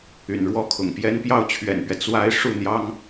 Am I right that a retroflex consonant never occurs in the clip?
no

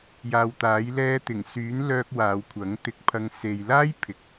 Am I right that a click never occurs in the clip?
yes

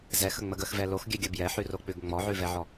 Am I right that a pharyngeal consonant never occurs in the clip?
no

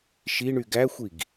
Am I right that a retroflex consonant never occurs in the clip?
no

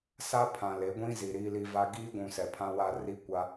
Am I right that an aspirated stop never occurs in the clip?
no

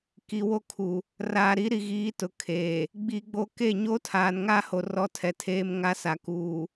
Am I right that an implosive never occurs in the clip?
yes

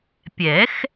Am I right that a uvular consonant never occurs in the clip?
yes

